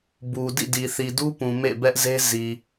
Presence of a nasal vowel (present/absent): present